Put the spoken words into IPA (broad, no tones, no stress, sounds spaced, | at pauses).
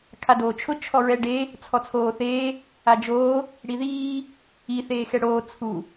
kʰ a d oː t͡ʃʰ ʊ t͡ʃʰ ɔ ɹ ɛ ɖ e | t͡sʰ ɔ t͡sʰ oː θ eː | a d͡ʒ oː | ɽ i ð iː | i θ eː x ɛ ɽ oː t͡sʰ u